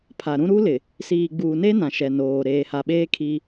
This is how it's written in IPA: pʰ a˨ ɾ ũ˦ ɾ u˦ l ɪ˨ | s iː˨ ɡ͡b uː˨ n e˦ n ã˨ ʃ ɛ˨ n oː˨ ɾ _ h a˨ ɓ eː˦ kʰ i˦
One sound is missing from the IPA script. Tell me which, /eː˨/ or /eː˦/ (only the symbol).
eː˨